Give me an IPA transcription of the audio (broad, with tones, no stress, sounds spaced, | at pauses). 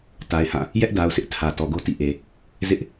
t a˨ ɪ̯ h ã˦˨ | j ɛ˦ ʔ d a˨ ʊ̯ sʰ ɪ˦ ʔ tʰ ä˨ t ɔ˨ ɡ o˦ t ḭ˦˨ ʔ e˨ | z ɪ˦ ʔ